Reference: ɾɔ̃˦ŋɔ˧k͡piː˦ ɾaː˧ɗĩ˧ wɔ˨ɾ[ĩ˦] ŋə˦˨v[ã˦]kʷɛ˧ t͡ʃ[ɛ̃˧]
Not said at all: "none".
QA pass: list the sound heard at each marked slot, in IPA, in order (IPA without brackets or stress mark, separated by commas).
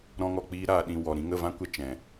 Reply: ĩ˧, ã˦, ɛ̃˨